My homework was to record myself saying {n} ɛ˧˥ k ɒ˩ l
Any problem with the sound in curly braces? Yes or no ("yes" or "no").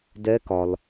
yes